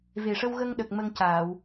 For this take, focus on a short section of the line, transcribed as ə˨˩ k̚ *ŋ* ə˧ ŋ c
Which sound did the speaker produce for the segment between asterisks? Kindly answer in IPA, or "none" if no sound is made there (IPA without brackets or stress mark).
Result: m